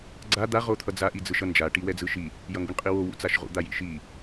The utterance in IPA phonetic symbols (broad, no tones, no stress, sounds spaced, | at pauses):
ɡ͡ǀ a d̪ a ʁ o t̪ʰ ʌ d͡z a ʔ i d͡z ɯ ʃ ʌ n d͡ʒ a ʈ i w ɛ d͡z ɯ ʃ i | j ʌ ŋ ɡ ʊ ɳ qʼ i w o w ṵ t͡s a ʃ ʁ ṵ d̪ a j ḭ ʃ i